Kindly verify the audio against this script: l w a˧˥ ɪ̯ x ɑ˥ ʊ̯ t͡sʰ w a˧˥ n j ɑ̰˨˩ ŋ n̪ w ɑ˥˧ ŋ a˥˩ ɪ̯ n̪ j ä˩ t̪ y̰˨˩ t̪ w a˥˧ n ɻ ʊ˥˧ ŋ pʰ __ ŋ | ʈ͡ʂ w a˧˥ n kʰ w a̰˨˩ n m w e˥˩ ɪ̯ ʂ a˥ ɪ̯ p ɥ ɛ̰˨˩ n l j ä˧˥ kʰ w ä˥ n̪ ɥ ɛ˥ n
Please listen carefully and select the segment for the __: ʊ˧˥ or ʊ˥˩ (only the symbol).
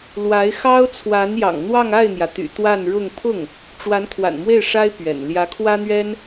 ʊ˥˩